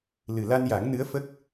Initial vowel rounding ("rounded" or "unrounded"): unrounded